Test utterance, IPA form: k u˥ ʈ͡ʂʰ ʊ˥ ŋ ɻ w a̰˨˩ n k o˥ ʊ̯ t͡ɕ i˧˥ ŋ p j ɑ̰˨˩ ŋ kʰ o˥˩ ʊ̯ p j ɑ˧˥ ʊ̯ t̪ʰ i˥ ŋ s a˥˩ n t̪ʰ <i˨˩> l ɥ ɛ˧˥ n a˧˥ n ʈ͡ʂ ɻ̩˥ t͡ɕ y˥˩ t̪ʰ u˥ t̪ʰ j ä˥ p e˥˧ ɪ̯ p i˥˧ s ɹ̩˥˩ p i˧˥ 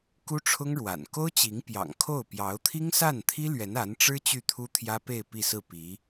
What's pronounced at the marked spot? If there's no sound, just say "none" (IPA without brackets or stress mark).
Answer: i˥